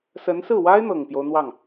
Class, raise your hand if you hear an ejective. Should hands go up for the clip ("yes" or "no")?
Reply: no